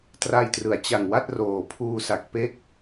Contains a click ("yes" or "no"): no